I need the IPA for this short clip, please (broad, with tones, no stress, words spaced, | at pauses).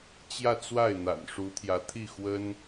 t͡ɕjä˥˧t͡swa˥˩ɪ̯n̪a̰˨˩n ʂu˧˥t̪ʰjä˧˥t̪ʰi˥˩xwə˥n